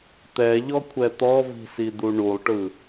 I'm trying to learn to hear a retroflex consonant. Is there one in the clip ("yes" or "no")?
yes